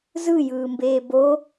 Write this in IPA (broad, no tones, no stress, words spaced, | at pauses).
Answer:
zɯjɯːmbeː bo